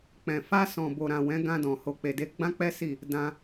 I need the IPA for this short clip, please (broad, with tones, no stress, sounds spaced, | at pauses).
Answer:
k͡p ɛ̃˨ f a˧ s ɔ̃˨ b o˨ ɾ ã˨ w ɛ̃˨˦ ɡ ã˧ d ɔ̃˨ h o˨ k͡p e˨ d e˨˦ ɡ͡b ã˦ k͡p ɛ˦ s i˦˨ | d ã˧